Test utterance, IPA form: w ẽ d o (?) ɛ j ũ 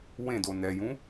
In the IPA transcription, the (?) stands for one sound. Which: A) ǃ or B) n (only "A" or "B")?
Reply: B